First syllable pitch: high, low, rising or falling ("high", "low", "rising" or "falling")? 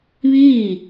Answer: falling